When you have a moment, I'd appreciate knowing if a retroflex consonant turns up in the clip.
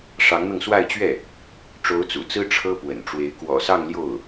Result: yes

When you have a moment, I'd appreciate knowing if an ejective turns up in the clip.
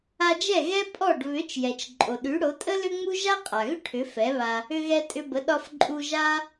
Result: yes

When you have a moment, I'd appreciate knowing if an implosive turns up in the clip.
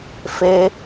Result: no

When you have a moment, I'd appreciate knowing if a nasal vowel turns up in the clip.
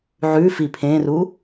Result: yes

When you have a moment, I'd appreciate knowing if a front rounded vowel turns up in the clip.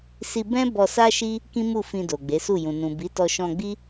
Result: no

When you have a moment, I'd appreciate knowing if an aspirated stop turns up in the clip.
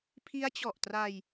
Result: yes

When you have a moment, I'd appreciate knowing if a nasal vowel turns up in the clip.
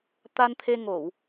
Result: no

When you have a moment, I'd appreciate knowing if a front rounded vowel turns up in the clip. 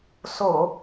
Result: no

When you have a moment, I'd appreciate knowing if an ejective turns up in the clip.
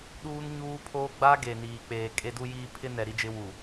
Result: yes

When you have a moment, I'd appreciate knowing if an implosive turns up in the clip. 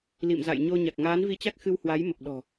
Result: yes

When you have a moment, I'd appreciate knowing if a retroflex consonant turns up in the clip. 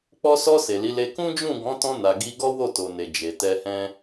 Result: no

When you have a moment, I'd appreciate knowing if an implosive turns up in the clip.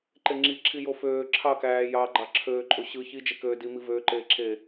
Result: no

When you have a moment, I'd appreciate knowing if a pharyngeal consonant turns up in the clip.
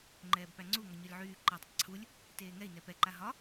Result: yes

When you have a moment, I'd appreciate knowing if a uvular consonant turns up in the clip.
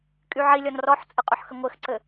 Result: yes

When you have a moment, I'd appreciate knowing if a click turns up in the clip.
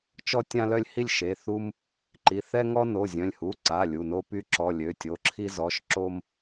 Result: yes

